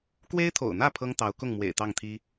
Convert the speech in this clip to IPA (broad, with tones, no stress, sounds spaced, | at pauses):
k w e˥ ɪ̯ t̪ʰ o̰˨˩ ʊ̯ n̪ ä˥˩ pʰ ɤ˥ ŋ t̪ ɑ˧˥ ʊ̯ k ʊ˥˩ ŋ m w ḛ˨˩ ɪ̯ t̪ ɑ˥˩ ŋ t̪ʰ i˥